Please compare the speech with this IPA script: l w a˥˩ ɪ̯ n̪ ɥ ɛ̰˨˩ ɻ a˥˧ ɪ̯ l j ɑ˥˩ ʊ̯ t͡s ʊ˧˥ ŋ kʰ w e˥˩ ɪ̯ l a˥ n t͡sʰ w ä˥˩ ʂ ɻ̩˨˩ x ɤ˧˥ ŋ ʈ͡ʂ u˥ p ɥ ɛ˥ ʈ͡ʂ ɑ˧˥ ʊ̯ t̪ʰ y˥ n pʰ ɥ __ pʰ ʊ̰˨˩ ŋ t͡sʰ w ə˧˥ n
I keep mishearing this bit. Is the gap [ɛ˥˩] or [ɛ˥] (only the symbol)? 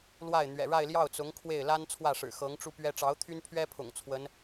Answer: ɛ˥